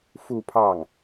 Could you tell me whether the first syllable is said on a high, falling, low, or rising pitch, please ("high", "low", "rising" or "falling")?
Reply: falling